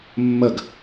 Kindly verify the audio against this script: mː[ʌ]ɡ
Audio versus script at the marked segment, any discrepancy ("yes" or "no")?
no